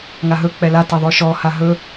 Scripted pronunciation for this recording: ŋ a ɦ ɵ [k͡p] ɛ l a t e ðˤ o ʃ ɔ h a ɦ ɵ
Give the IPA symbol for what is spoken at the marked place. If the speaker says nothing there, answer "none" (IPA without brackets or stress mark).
k͡p